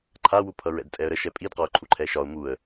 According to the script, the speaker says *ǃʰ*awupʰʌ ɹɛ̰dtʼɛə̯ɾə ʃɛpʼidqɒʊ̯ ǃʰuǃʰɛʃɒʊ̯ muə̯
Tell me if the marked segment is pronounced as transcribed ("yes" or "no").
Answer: yes